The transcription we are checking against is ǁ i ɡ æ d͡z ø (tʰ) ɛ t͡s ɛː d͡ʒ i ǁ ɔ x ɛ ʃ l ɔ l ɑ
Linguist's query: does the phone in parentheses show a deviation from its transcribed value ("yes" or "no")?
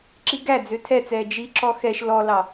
no